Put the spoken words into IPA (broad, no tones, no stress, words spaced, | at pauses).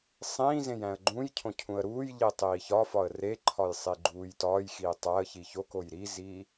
sˤĩːzẽj æ̃ə̯ɡ͡ǃũjcʰõ cʰũə̯ɾuːjʎi tˤiːçɒfɒə̯ reǃʰɒj sˤiɡ͡ǃuːjtɒːjxiː tˤæə̯çi çokoj ɾizi